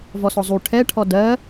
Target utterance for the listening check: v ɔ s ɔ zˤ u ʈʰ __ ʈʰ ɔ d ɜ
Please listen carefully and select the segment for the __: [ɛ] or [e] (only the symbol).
ɛ